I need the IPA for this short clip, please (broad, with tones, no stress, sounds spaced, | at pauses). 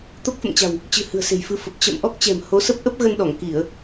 t̪ o˦˥ k̚ f ə̰˧˨ m t͡ɕ a̤˨˩ w | t͡ɕ ɨ̤˨˩ h ɨ̤˨˩ ə̯ s e̤˨˩ j f ɨ˨˦ f ə˨˩ p̚ t͡ɕ ə̰˧˨ m ʔ ɔ˦˥ k̚ t͡ɕ ɛ̤˨˩ m h o˨˦ s ə˦˥ p̚ ʔ ə˦˥ p̚ ɣ ə˧ n ɗ ɔ˧˩ ŋ k i˧˩˨ ə̯